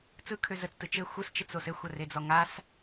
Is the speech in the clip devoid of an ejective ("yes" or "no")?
yes